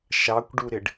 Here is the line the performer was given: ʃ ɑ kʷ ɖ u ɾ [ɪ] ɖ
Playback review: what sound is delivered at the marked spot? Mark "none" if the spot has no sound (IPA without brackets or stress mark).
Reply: ɪ